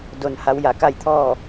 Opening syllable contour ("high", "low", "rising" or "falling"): low